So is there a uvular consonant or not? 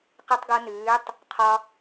yes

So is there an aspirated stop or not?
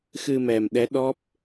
no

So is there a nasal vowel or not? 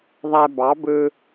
no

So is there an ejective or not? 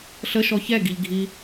no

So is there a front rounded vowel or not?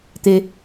no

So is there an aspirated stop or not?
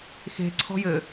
yes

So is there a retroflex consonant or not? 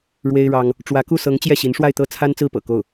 yes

